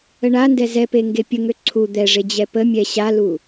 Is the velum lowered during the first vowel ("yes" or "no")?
no